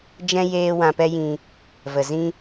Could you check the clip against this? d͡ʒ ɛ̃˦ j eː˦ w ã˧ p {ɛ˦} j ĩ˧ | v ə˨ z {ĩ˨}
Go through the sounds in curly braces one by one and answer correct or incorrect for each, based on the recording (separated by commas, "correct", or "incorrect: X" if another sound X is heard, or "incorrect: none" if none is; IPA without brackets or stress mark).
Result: correct, incorrect: ĩ˦